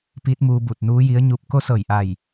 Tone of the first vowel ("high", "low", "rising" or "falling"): rising